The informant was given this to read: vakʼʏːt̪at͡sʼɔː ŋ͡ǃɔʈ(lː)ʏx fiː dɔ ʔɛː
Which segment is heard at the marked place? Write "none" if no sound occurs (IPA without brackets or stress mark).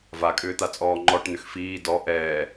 n̪